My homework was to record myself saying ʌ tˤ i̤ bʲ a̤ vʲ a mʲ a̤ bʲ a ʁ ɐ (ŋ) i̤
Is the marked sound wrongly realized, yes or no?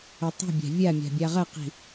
yes